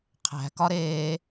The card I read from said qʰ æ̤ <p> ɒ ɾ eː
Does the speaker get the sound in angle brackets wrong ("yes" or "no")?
yes